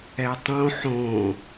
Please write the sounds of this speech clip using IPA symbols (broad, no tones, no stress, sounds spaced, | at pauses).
ɛ tˤ õ ħ õ